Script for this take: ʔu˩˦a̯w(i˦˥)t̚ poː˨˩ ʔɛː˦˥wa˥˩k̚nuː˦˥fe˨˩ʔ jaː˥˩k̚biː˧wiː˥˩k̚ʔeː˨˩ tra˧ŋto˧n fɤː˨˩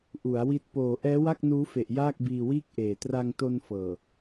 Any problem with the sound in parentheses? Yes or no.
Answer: no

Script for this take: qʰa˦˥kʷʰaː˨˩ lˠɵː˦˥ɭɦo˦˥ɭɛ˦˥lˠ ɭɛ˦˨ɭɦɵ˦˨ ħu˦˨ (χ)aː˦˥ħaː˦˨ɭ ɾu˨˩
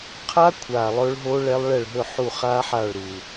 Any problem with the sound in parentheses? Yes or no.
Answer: no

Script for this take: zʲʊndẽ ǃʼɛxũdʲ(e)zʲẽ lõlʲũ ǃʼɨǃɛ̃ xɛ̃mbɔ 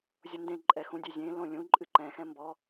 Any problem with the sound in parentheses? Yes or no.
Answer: no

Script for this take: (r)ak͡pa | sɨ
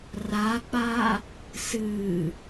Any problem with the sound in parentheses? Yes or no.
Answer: no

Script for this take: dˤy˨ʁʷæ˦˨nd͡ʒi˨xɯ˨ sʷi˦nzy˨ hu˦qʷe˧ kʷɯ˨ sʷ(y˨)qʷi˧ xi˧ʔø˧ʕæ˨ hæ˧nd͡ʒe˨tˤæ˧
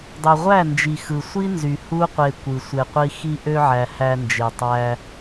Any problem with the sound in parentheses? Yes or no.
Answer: yes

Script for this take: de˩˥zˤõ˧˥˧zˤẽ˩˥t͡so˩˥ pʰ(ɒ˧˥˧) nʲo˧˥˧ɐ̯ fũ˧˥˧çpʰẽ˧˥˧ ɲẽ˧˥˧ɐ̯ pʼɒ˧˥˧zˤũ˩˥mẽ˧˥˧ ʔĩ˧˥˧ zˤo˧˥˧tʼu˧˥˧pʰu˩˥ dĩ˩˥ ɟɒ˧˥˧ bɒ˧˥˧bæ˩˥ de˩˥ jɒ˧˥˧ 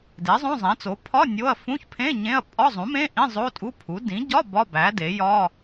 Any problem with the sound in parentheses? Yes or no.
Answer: no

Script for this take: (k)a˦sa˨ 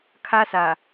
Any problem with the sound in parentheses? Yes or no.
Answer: yes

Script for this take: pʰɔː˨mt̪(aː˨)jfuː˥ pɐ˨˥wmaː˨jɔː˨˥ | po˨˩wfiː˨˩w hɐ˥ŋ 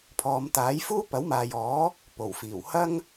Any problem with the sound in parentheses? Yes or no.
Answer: yes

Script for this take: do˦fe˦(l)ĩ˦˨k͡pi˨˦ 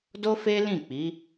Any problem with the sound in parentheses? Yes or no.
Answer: no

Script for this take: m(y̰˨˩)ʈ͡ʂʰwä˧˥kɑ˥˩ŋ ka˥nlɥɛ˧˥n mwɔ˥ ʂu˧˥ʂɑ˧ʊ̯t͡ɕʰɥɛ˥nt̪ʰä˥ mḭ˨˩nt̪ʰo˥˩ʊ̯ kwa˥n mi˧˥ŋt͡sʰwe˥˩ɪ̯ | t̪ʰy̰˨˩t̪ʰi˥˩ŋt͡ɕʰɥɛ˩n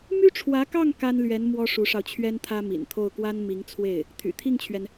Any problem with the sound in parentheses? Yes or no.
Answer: yes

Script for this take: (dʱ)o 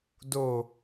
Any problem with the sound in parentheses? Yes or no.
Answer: yes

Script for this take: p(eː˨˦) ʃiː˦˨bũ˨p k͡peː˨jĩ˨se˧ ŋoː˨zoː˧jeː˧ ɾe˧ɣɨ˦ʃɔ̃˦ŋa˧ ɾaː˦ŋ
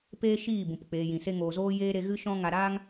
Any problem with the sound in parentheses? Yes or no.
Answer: yes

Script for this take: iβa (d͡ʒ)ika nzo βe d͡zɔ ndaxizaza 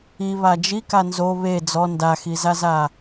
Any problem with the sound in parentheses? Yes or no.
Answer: no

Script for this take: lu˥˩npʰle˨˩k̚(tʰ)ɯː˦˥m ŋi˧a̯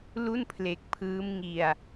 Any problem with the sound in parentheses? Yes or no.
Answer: yes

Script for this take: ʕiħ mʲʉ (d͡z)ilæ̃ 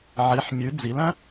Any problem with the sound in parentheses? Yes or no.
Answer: no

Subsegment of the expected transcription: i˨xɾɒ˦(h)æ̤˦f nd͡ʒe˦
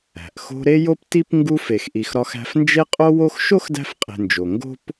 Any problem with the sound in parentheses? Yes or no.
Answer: yes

